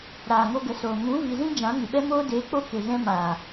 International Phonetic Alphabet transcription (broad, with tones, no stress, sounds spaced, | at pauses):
ɾ aː˨ ŋ o˧ ɡ ə˨ s oː˨ ŋ ũ˨˦ v i˨ z ĩ˧ d͡ʒ ã˨˦ ŋ ɨ˨ ɓ ɛ˦ m oː˦ d eː˨˦ k͡p o˧ k e˨ ɣ ɛ̃˧ m aː˨